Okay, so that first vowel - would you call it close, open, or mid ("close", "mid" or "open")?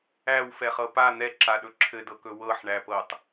open